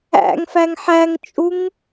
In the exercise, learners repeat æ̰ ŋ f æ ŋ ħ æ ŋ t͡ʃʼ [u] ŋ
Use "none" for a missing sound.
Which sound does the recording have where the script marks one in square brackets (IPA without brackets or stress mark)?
u